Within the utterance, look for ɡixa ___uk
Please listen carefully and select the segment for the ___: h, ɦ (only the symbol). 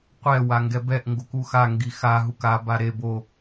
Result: ɦ